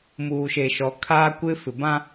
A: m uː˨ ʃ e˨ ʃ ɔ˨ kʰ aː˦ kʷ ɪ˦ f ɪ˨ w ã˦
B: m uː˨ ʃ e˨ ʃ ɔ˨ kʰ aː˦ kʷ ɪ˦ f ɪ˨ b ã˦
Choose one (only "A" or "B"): B